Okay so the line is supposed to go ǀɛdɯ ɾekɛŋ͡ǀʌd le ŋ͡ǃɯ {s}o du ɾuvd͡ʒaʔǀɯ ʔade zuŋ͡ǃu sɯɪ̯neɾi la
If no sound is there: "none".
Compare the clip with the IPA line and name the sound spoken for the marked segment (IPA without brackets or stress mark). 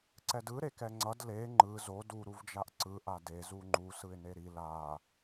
z